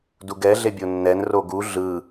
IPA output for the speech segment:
d u ɡ ɛ ɮ e bʲ o nː ɛ n r o ɡ u ɮ ɯ

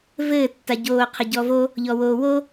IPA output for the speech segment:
v ɘː tː a ɟ oː qʰ ɘ ɟ ɔ v o | ʎ ɔ w oː w o

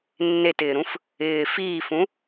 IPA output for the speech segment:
nː e t ɪː ɾ ũ f | ɪː f iː f ũ

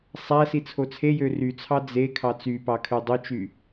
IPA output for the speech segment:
sˤ æ s i t͡sʰ o t͡sʰ e j ø r y t͡sʰ ɑ d͡z e kʰ ɑ t͡s y p ɑ kʰ ø dˤ o t͡ʃ y

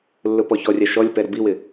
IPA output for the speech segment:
lː ʊ p ɔ ç ɔ rʲ a ʃ ɔ lʲ p ɛ ɾ ʊ b i w ɪ

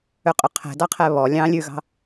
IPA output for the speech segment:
ø qʼ ø qʰ ɛ̤ d ɑ qʰ ɛ β ɔ lʲ ɑ̃ lʲ ʉ ɣ ɑ̤

